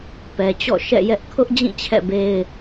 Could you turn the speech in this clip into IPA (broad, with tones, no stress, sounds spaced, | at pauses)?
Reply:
p ɛ˨ t͡ɕ ɔ̰˦˨ ʃ ɛ̰˦˨ j ɛ˦ ʔ kʰ ʊ˦ ʔ d͡ʑ ĩ˦˨ t͡ɕʰ ɛ̰˦˨ b e˦ ɪ̯